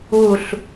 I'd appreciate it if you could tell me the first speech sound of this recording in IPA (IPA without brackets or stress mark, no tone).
u